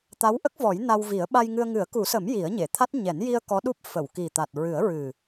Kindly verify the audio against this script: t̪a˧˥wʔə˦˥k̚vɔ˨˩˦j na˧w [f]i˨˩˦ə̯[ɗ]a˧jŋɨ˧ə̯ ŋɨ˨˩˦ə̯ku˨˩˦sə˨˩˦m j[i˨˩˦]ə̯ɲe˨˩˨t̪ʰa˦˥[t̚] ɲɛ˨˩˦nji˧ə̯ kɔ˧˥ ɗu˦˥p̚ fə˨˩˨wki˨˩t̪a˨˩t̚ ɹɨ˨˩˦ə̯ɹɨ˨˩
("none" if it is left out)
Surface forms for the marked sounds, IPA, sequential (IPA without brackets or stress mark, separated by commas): v, ɓ, i˨˩˦, t̚